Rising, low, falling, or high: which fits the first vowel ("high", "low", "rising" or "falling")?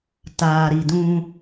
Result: low